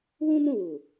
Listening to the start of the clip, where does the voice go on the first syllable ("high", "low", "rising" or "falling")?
high